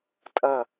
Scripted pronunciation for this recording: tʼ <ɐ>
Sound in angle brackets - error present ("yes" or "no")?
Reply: no